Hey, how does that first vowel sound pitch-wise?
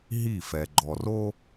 falling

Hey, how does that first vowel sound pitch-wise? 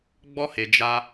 high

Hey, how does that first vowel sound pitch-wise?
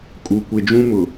low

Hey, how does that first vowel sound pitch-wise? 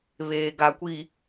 low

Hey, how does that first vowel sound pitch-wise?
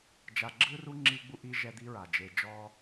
low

